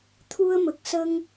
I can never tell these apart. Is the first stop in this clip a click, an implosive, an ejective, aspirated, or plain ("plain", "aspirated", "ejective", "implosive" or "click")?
aspirated